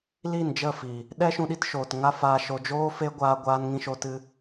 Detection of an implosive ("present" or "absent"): present